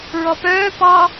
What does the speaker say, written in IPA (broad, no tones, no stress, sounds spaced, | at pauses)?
ɹ ɔ p œː p ɑ